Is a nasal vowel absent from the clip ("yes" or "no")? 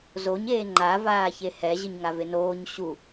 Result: yes